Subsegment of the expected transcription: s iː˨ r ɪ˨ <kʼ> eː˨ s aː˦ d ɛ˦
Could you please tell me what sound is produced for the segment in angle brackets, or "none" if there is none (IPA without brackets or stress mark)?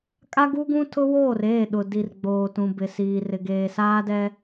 ɡ